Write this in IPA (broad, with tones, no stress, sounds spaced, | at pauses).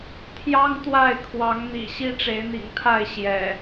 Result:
t̪ʰ j ɑ˦ ŋ t̪ w a˥˨ ɪ̯ kʰ w ɑ˨˦ ŋ n̪ ḭ˨˩ ɕ i˦ ʈ͡ʂ e˨˦ ɪ̯ n̪ ḭ˨˩ ŋ t̪ʰ a˥˨ ɪ̯ ɕ j ɛ̰˨˩